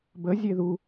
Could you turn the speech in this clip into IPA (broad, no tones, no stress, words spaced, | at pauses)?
bə zʲeðu